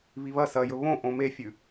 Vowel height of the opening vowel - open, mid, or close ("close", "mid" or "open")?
close